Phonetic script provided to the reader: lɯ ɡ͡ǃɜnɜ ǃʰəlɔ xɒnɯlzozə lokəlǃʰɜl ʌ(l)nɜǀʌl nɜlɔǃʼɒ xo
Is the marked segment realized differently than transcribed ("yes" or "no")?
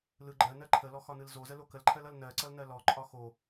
no